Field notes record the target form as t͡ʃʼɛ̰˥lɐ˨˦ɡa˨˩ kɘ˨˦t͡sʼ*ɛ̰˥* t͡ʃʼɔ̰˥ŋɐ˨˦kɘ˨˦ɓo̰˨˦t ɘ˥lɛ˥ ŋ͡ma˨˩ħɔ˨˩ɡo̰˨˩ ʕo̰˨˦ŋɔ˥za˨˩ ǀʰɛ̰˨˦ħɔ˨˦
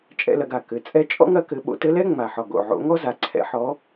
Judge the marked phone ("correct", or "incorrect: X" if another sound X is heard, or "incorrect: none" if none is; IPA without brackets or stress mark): incorrect: ɛ˥